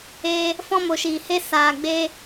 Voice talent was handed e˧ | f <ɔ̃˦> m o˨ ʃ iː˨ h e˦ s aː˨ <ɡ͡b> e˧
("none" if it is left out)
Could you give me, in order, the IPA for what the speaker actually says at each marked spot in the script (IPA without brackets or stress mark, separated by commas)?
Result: ɔ̃˦, ɡ͡b